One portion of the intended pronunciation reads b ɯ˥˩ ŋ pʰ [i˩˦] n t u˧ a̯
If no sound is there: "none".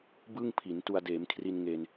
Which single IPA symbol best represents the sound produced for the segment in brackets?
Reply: i˩˦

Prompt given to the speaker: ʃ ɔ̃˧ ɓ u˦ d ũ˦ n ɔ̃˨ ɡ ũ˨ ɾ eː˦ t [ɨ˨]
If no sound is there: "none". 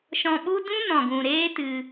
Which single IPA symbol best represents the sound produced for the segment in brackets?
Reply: ɨ˧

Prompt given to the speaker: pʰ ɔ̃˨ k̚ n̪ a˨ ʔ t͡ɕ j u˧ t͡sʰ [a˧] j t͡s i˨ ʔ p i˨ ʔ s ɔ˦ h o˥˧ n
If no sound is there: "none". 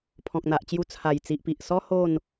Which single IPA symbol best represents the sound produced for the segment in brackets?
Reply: a˨˩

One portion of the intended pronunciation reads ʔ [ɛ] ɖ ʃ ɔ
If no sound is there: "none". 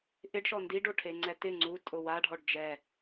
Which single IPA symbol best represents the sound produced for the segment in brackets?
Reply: ɪ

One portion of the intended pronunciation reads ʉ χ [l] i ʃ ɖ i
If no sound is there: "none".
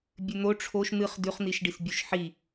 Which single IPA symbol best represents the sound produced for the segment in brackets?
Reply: n̪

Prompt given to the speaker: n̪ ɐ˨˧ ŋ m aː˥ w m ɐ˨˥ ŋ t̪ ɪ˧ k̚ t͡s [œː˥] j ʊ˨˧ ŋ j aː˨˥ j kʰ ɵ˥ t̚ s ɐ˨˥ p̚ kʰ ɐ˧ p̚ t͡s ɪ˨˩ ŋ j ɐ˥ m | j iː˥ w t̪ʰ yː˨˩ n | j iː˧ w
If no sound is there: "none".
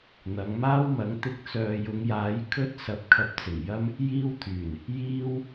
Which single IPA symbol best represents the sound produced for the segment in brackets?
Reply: œː˨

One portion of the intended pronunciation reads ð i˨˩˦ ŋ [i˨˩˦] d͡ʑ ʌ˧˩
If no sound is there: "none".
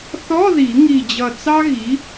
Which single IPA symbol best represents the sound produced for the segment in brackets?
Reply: i˧˩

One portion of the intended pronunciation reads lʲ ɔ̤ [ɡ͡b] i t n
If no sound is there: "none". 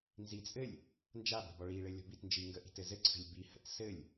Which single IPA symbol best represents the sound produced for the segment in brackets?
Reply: b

